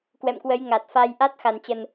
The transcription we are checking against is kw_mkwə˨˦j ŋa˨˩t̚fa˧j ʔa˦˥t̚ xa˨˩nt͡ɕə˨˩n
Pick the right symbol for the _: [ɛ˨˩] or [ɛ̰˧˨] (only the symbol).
ɛ̰˧˨